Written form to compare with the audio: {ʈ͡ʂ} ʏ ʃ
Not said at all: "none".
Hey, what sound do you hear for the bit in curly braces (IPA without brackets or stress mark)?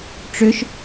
ʈ͡ʂ